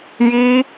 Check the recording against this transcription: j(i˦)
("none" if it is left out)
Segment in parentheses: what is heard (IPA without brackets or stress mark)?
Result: i˦